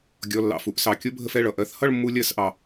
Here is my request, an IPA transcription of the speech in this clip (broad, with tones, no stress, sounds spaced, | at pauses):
ɡʲ ɔ˩˧˩ lː ɑ̰˩˧˩ f u˩˧˩ ʔ s ɑ˩ kʲ ʊ˦˥ bʱ ə˧ f ɛ˩˧˩ ɭ ʌ˩˧˩ ʔ ɜ˥˧ θ h ʌ˥˧ ɭ mː u˧ lʲ ɜ˥˧ s ʔ ɑ˩